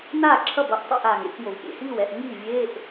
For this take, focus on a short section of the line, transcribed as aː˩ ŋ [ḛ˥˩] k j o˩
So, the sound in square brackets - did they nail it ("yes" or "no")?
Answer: yes